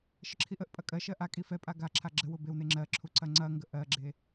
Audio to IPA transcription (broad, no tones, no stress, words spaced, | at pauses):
ʃəǁʰiʔəʔpʼɐ kʼɜʃɜ ʔakʼi fɛpʼa ɡaǁʰa ɡ͡ǁə wʊbewne ŋ͡ǁɜǁʰu ǀɐŋ͡ǀɐŋɡə ʔɜɡ͡ǁe